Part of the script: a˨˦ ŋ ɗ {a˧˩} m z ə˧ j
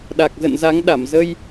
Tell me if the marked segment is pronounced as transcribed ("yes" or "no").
yes